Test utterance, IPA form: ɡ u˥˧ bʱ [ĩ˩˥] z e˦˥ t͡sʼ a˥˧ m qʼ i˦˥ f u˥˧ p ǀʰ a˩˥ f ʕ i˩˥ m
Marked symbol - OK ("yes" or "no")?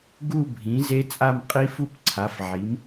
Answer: yes